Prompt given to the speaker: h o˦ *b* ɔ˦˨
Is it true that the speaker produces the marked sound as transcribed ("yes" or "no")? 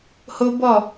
yes